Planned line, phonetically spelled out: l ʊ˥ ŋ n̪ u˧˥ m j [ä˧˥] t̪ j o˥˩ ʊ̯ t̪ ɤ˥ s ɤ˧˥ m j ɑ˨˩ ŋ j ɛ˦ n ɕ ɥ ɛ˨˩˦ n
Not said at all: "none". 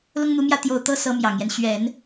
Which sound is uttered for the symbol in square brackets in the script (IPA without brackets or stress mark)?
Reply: ä˥˧